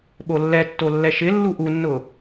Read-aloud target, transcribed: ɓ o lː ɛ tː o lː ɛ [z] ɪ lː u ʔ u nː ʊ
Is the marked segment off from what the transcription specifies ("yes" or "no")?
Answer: yes